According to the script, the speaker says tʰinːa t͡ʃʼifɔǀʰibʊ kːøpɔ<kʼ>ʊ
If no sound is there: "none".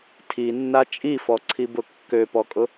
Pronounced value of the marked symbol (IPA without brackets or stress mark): kʼ